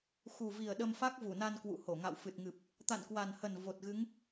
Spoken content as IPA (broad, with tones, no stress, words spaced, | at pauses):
xu˨˩vi˨˩ə̯ ɗə˧mfa˦˥k̚vu˧˩na˧n kwṵ˧˨ho˧˩ŋa̰˧˨w fɨ˨˩t̚ŋɨ˨˩p̚ | t̪a̰˧˨nkwa˨˩nhə˨˩n vo˨˩t̚ɣɨ˨˦ŋ